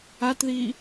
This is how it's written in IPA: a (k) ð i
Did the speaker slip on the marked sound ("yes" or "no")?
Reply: yes